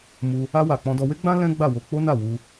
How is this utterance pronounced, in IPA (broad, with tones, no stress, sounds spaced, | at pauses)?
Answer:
m u˧ | a˧ w a˨ k͡p ɔ̃˧ d ɔ˧ w e˦ ɡ͡b ã˦ l ɛ̃˦ ɡ͡b a˦˨ w o˧ k͡p o˦ n a˦˨ w u˧